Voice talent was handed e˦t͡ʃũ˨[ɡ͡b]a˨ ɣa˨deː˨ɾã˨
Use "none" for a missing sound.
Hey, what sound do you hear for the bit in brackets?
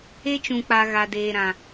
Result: k͡p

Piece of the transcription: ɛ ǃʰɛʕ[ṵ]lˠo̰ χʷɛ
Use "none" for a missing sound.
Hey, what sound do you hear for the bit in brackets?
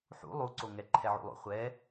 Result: ṵ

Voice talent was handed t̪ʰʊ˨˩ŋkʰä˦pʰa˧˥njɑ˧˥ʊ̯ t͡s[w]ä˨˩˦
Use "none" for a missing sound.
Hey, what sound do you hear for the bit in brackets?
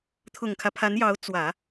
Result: w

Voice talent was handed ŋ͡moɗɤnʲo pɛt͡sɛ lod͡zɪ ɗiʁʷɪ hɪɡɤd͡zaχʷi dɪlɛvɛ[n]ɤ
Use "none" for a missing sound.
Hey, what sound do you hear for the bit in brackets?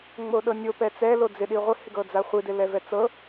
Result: t͡s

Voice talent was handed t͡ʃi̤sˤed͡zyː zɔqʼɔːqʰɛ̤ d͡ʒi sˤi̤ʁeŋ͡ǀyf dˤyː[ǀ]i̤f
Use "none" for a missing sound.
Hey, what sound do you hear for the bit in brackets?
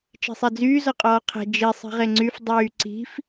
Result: ǀ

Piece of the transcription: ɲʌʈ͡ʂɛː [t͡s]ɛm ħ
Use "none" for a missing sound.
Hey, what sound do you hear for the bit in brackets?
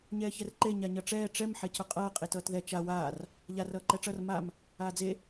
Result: ʈ͡ʂ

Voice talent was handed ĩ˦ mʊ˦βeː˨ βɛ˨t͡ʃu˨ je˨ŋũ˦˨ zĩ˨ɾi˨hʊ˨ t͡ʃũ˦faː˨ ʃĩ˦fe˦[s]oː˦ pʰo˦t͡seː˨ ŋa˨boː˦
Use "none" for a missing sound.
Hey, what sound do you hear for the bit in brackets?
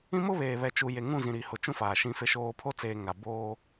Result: ʃ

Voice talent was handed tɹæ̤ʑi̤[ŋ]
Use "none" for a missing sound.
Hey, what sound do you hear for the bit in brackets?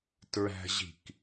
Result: k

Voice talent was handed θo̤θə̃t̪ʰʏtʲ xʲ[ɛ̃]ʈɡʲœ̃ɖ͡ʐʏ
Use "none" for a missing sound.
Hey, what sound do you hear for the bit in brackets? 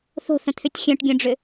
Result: œ̃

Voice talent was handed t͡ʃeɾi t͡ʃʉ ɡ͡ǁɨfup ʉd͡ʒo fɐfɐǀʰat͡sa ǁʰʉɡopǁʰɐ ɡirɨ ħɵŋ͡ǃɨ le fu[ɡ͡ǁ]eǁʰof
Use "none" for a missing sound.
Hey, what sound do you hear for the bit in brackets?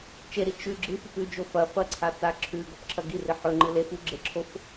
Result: ɡ͡ǁ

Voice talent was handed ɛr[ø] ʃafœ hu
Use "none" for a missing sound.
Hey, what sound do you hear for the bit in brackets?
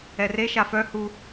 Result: e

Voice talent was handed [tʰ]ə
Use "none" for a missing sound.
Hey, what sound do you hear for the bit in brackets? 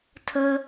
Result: tʰ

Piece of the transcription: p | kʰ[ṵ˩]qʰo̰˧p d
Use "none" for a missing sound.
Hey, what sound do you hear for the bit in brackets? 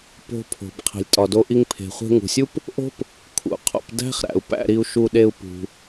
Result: ṵ˩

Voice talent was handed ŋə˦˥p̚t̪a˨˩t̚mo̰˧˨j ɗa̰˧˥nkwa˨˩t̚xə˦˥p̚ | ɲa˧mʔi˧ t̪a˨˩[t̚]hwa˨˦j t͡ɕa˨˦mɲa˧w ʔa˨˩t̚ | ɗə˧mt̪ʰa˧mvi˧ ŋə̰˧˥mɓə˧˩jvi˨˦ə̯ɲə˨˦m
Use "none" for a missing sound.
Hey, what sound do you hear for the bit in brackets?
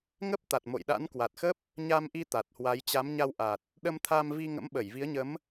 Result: t̚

